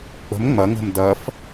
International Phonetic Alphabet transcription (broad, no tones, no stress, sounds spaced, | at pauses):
k͡p ə̤ m ŋ͡m ɐ ŋ ə̤ m d ɐ f